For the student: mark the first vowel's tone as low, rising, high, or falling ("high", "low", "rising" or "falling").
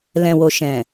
low